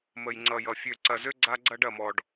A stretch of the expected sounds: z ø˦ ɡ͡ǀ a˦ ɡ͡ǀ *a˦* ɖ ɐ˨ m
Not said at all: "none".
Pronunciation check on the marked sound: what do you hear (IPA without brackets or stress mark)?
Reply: ɐ˦